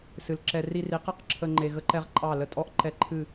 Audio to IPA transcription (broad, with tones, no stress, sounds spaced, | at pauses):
s ɨ˨ l ǁ ɛ˧ r i˧ r i˨˦ q ɛ˦ q ǁʰ ə˧ ŋ͡ǃ e˧ ɣ ə˦ ǃ ɛ˦ ʁ ǃʼ ɑ˦˨ l ə˧ tʼ ɔ˦ ʔ ǃ ɛ˧ ǃʰ ɨ˦˨